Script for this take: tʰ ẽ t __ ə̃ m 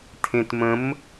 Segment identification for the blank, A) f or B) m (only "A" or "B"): B